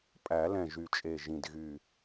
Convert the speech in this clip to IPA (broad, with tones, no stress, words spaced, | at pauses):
pʼæ˨˩˦lɛ̃˨˩ ʒy˨˩t͡ʃʼe˨˩ʒĩ˨˩dɣy˨˩